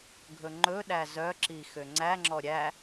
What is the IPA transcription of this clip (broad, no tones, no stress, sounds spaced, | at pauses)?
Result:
ɡʱ ɵ ŋ͡ǃ ɵ ɗ æ z œ ǁ i x ø ŋ͡ǀ æ ŋ͡ǁ ɔ ɾʲ æ